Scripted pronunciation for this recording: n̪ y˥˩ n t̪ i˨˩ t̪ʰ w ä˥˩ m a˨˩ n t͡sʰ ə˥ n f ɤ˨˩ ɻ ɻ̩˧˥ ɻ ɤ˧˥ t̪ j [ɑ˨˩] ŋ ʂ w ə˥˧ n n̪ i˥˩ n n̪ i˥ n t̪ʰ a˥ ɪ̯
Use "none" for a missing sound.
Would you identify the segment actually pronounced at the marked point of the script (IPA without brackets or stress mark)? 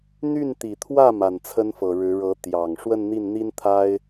ɑ˨˩